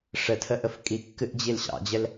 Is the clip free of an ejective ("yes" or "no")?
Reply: no